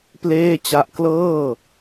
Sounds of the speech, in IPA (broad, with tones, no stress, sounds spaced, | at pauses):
p l eː˥˩ t͡ɕ a˦˥ ʔ k l ɤː˥˩